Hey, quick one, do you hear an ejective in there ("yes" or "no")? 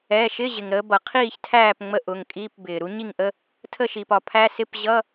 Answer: yes